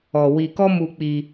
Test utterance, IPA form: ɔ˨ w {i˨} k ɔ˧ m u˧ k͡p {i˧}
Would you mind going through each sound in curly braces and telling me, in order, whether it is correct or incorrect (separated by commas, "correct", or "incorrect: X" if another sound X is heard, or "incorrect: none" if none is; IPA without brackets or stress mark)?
correct, correct